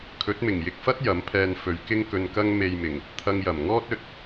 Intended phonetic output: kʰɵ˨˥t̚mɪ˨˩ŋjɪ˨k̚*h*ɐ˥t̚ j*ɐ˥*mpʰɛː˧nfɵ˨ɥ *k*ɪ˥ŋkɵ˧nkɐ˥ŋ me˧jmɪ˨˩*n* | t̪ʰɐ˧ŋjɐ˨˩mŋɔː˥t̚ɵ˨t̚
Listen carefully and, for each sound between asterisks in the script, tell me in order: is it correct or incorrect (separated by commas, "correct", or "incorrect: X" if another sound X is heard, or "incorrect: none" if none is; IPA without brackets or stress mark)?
incorrect: f, incorrect: ɐ˨˥, correct, incorrect: ŋ